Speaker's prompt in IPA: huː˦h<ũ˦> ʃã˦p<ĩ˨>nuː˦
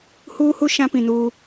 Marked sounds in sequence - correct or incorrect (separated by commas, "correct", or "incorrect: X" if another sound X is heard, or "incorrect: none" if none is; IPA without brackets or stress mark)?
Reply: incorrect: u˦, correct